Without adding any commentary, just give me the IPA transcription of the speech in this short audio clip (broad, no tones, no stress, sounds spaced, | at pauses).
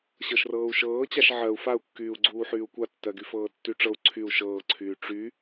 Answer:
ɕ ɤ ʃ r ɤː u̯ ʃ ɤː t͡ɕ a ʃ ʕ ɜ u̯ f a u̯ kː yː u̯ ɡ͡ǀ uː ħ yː u̯ kʷ a tː ɜ ɡ y f ɤː tː y ʈ͡ʂ ɤ u̯ ǀʰ y u̯ ʃ ɤː ǀʰ yː ʈ͡ʂ y